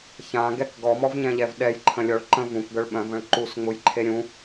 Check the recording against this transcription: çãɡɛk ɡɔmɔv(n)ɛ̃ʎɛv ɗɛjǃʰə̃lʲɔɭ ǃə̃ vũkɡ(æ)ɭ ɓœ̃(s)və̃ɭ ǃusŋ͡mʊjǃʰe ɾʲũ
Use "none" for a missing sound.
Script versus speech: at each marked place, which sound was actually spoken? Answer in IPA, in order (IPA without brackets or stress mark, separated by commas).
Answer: ɲ, œ, none